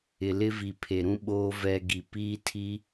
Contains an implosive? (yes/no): yes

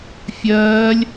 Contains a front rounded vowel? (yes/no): no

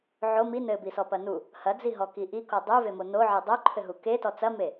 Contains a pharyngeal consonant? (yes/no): yes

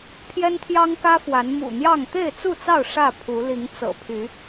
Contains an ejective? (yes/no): no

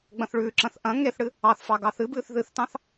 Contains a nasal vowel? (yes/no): yes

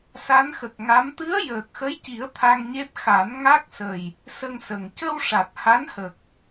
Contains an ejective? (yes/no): no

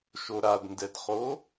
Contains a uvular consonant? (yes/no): yes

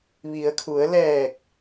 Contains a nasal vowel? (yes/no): no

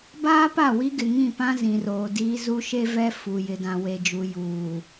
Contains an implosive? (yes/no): no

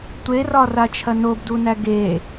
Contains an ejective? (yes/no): no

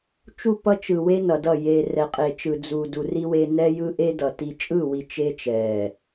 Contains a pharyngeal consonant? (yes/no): no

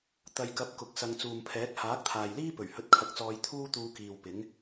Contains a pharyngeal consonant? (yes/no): no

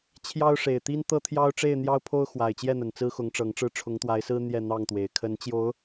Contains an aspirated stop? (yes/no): yes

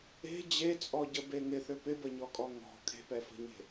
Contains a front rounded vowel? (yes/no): yes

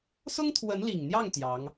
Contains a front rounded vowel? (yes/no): no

